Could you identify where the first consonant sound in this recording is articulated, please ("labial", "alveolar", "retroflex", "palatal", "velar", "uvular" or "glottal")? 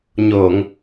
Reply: palatal